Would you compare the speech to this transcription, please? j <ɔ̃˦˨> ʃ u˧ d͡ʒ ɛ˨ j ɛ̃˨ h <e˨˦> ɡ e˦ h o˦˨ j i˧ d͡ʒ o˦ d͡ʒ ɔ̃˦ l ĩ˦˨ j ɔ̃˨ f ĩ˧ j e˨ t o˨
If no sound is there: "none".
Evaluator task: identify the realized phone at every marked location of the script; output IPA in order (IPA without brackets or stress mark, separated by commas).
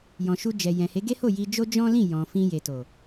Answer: ɔ̃˨, e˨˦